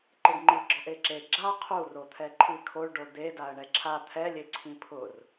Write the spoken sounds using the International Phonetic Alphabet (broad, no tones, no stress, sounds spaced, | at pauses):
ǃ ɪ ɖ ŋ͡ǃ i ɡ͡ǁ ɔ ʔ e ǁ e ɡ͡ǁ a qʰ u r o t̪ʰ ɛ ǃʰ i kʰ o ɭ ɖ o d̪ e d a ə̯ ɳ ɛ ǁʰ a t̪ʰ ɛ lʲ e ǀʰ ĩ pʰ ʊ r